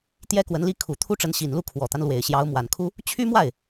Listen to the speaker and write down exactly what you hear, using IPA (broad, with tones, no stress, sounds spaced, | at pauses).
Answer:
t̪ j ɛ˥ k w ə˧˥ n l i˥ kʰ u˨˩ t̪ʰ u˥ ʈ͡ʂ ə˧˥ n ɕ i˨˩ n l u˥˩ kʰ w ɔ˨˩ t̪ a˦ n l w e˨˩ ɪ̯ ɕ j ɑ˧˥ ʊ̯ m w a˨˩ n kʰ u˥ | t͡ɕʰ y˥ m w a˥˩ ɪ̯